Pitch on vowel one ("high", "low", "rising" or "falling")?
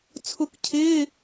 rising